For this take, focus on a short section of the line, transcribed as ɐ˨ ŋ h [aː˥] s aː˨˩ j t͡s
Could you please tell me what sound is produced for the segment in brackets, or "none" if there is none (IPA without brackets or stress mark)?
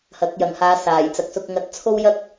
aː˨˧